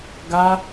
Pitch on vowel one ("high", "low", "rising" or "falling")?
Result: high